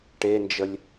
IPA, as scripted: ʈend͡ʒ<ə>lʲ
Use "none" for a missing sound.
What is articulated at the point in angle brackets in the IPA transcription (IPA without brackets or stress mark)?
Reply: ə